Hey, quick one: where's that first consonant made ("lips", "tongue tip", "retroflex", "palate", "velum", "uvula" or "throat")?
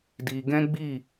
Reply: tongue tip